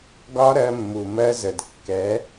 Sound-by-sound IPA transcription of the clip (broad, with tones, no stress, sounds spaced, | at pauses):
ɡ ɒ˦ ɾ ɜ˧ mː u˨ m ɜ˧ z ə˨ d kː ɛ˨˦